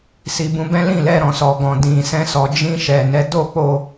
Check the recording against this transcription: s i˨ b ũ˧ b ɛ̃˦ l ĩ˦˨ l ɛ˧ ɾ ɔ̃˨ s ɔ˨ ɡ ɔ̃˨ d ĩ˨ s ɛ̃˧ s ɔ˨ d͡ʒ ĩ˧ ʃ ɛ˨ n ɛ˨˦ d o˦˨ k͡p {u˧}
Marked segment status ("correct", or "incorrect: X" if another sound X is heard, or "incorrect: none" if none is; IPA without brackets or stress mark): incorrect: o˧